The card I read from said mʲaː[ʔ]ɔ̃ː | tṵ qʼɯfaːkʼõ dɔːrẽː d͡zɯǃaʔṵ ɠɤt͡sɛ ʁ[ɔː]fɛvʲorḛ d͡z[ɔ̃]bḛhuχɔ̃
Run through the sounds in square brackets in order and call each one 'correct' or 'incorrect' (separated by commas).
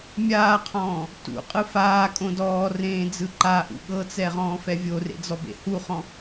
incorrect, incorrect, incorrect